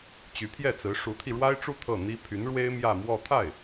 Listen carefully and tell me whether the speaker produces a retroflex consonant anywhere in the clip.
yes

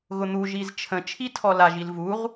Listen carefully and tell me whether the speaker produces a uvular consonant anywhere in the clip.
yes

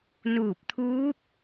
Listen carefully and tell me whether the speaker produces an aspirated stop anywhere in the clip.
yes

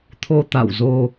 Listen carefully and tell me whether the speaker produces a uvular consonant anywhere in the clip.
no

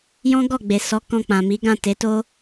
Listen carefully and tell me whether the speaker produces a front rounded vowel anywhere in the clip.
no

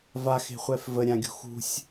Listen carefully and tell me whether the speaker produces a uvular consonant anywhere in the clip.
yes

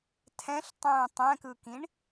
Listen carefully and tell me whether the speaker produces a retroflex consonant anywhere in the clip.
yes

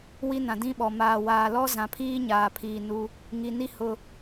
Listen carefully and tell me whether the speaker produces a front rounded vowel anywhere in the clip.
no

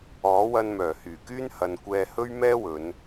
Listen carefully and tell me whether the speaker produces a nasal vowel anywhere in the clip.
no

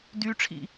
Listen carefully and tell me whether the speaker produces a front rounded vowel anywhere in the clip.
yes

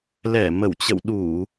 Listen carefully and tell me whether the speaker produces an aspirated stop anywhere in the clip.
no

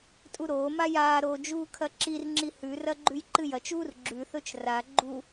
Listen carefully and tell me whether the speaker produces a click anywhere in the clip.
yes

